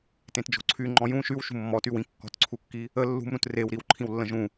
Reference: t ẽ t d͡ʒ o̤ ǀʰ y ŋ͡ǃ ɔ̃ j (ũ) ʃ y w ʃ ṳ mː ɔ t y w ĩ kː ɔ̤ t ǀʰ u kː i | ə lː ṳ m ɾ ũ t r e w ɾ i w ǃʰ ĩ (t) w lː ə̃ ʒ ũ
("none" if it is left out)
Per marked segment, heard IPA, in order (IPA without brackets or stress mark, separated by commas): ũ, none